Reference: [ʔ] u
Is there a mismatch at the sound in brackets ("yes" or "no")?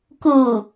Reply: yes